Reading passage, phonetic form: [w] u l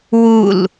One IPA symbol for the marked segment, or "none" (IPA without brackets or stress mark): w